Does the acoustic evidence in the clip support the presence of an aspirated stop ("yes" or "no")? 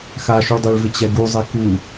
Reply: no